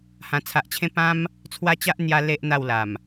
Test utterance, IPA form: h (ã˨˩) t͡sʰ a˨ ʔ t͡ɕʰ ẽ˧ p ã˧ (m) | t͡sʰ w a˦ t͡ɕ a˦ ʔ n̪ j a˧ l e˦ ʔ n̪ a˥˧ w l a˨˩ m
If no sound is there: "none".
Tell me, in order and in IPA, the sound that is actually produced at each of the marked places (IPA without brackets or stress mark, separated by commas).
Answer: ã˨˩, m